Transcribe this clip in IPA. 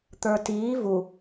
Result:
t̪ə˞tiː vu

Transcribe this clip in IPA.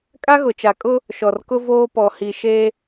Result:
kʼa˦ɣʊ˨t͡ʃa˨kʼʊ˦ | ʃɔ˨rkʊ˦ voː˦pɔ˨ hi˨ ʃe˦

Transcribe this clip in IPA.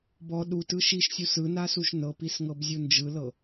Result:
bɔ ɗutɯ ʃiʃsʲu sɯnasuʃ nɤpisŋɤbzʲu nd͡ʒɯlɤ

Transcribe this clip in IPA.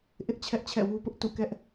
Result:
ʔɪ˦ʔ t͡ɕʰɛ˦ʔt͡ɕʰɛ̰˦˨wu˦pʊ˦ʔ tṵ˦˨kɛ˦ʔ

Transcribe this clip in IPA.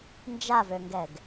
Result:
nd͡ʒavøŋɡɛɡ

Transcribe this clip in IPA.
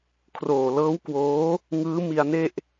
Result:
kʰroː˨˩lɤː˦˥w kwoː˦˥ | ŋɯː˦˥mi˧a̯ne˥˩ʔ

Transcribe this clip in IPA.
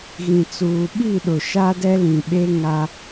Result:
ɣĩ˨t͡suː˨ ɓi˦˨ɗʊ˨ ʃa˦dɛ˦ lĩ˨ɓe˦ ŋa˦

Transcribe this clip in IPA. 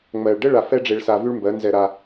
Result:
ŋ͡mɜ˨ɭɖə˦ ɭa˧fɛ˦ɖ͡ʐe˧ɭsa˧ vy˦ɭmbɜ˨˦nzɛ˧ɾa˧

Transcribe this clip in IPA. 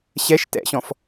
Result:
ɕɛʃ tɛ̰ɕɔ̃f

